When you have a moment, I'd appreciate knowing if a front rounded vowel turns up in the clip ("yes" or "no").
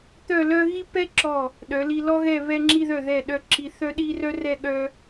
yes